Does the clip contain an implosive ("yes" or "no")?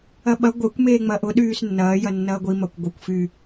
yes